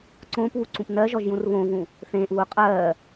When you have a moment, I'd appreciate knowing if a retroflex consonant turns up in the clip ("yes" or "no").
no